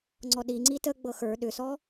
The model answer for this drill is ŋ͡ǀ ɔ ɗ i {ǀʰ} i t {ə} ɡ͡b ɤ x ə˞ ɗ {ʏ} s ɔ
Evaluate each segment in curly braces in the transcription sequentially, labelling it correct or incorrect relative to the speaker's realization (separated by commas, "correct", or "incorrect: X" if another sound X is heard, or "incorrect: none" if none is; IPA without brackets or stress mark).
incorrect: ŋ͡ǀ, correct, correct